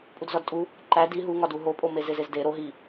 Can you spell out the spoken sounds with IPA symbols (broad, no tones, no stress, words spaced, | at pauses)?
pʼudzɒdtʼu | ǃæ di ɦuŋɒdu ɦopʼo mezezezde ɾo ɦi